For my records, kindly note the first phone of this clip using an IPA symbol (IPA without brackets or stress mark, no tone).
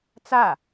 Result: t͡s